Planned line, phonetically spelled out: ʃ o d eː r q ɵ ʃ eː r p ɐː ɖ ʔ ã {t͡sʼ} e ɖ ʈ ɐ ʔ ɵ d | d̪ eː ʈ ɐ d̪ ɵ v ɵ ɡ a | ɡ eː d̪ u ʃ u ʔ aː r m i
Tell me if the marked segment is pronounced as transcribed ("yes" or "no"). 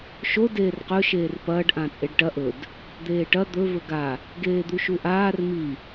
yes